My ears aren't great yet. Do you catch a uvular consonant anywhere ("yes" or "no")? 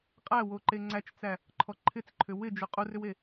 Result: yes